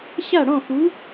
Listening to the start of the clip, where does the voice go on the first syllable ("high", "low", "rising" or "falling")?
falling